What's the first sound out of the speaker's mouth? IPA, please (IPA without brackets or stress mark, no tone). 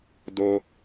d